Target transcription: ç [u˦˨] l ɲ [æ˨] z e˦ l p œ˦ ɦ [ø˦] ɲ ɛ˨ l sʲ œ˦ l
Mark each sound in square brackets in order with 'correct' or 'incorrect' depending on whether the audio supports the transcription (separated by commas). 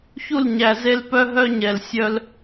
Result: correct, correct, incorrect